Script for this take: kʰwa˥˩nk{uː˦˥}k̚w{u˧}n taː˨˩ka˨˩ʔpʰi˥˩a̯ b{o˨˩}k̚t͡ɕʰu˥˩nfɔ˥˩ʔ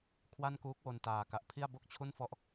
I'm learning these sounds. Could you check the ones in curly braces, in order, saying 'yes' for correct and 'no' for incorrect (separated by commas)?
yes, no, no